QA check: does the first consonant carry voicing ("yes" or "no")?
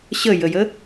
no